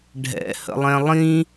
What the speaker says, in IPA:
ɖʱ ɛ̰ h ə̰ lˠ ɛ̃ lˠ ĩ

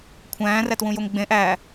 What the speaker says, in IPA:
kʷʰ æ̃ː r æ t w ũ j o ŋ ɡ͡b ẽ ʔ æ

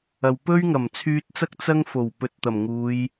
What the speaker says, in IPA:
ɐ˨ w p ɵ˥ ɥ ŋ ɐ˨˩ m t͡sʰ yː˧ t̚ t͡s ɐ˥ k̚ t͡s ɐ˥ ŋ f o˨˩ w p ɵ˨˥ t̚ t̪ ɐ˨˩ m ŋ uː˨˧ j

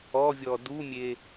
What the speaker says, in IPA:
ɔ vʲ ɔ d u mʲ e

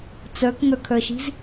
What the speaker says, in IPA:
t͡s ə˞ k ŋ ə˞ kʰ ə˞ ʃ i̤ z

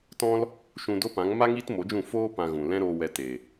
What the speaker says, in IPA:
t ɔ̃˦ l | ʃ ũ˧ d o˦ p ã˨˦ ŋ m a˦ ŋ iː˦ t m o˨˦ d͡ʒ ũ˦˨ f oː˧ p ã˧ ɣ ũ˨ l ɛ̃˦ ɾ oː˧ w ɛ˧ t e˨

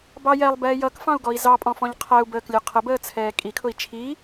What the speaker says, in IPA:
b ɑ j ɛ lˠ b ɛː j ʌ k f ɑ̃ u̯ ɡ ɔ i̯ z ɑ pʼ ɔ̃ f ɔ̃ ʎ qʰ æ u̯ b əː k lʲ ə˞ qʰ ə b əː t͡sʰ ɛː kʼ i kʰ ʊ i̯ t͡ʃʰ i

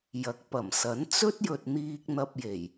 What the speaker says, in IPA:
j ɐ˨˥ k̚ p ɐ˨˩ m s ɐ˨˥ n t͡s ɵ˥ t̚ j ɵ˨ t̚ n̪ iː˧ k̚ n̪ ɐ˧ p̚ j e˨˩ j

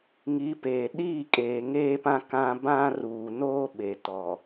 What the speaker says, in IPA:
ŋ i˨˦ p eː˨ ɗ iː˦˨ kʼ eː˨ ŋ eː˦ p ã˦ k ã˦ b ã˦ r uː˨ n oː˦ ɓ e˨ t ɔ˨

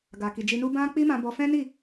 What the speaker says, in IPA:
ɡ a˨ k i˨ d͡ʒ i˧ n u˦ b ã˦ k͡p i˦ m ã˧ b ɔ˧ f ɛ̃˦ n i˦˨

